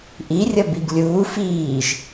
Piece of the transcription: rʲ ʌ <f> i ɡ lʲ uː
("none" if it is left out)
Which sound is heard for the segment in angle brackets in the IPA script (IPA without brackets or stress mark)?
b